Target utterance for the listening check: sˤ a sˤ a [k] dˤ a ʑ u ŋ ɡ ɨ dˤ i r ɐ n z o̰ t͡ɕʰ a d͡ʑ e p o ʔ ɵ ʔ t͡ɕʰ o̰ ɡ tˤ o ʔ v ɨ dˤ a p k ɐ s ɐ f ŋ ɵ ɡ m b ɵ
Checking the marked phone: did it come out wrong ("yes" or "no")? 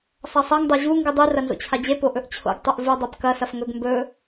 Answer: yes